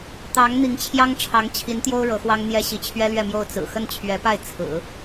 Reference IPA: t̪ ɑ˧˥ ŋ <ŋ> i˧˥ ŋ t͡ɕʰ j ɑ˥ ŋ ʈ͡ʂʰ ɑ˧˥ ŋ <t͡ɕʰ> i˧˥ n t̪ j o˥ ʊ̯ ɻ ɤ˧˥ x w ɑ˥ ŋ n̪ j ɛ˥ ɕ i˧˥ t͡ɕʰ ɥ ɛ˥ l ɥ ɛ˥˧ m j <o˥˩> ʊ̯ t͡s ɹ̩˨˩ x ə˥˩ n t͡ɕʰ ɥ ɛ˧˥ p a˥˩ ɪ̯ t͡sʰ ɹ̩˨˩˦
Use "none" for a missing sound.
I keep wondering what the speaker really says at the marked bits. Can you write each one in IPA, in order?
n̪, t͡ɕʰ, o˥˩

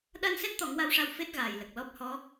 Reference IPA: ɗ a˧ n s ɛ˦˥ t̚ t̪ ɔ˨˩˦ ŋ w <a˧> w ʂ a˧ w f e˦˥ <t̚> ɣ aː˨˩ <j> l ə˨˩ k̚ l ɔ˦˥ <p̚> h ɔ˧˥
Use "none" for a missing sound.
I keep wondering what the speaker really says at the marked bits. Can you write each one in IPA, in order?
a˧, t̚, j, p̚

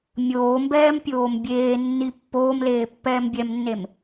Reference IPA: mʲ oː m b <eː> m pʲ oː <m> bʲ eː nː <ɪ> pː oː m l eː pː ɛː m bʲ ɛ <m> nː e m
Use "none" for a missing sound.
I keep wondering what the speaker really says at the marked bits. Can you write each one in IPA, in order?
ɛː, m, i, m

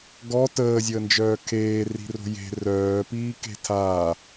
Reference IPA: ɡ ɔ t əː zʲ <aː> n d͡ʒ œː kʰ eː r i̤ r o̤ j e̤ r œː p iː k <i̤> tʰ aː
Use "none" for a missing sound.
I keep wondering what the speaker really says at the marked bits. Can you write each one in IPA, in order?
əː, e̤

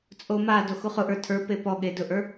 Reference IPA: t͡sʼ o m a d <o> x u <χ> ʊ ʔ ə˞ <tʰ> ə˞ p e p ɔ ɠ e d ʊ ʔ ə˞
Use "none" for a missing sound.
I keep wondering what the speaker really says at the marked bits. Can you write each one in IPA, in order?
o, χ, tʰ

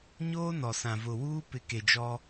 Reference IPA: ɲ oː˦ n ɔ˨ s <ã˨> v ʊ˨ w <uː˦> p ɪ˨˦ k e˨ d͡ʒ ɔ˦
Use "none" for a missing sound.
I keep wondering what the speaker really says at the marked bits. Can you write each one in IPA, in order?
ã˨, uː˦

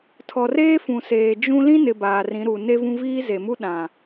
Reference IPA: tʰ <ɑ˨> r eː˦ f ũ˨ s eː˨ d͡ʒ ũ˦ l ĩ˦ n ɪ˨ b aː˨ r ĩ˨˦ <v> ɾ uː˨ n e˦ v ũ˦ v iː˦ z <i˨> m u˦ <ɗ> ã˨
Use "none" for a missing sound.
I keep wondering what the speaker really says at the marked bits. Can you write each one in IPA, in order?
ɔ˨, none, e˨, ɗ

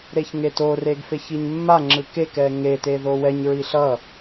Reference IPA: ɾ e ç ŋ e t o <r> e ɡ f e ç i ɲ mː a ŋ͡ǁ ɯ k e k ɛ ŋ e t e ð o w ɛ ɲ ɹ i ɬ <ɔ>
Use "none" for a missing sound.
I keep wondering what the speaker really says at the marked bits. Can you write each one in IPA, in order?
r, ʌ

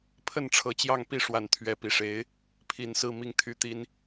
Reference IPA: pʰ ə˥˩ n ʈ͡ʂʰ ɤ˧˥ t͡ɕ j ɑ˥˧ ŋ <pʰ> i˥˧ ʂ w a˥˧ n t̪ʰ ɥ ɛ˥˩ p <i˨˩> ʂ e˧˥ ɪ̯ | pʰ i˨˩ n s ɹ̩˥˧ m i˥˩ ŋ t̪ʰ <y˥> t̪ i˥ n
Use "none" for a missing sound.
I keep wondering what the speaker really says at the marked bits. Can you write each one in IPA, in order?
p, i˨˩, y˥

